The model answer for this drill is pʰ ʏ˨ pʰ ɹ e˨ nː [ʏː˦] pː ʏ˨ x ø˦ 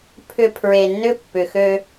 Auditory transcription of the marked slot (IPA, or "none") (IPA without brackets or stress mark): ʏ˦